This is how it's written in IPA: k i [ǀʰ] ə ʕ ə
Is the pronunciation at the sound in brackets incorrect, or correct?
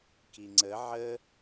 incorrect: ŋ͡ǀ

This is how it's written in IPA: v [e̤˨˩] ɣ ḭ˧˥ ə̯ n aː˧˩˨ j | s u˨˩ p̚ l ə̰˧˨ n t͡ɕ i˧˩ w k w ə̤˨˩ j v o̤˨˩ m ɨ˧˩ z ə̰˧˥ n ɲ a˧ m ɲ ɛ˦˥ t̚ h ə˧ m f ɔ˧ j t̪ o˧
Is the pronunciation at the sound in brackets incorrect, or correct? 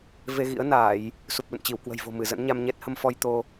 incorrect: e˧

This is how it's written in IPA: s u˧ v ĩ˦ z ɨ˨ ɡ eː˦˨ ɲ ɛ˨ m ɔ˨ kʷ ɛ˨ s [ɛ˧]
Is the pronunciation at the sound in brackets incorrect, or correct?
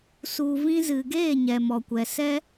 incorrect: ɛ˦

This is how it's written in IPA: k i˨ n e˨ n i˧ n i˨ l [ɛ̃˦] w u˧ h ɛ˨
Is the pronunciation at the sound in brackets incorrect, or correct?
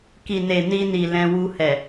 incorrect: ɛ̃˧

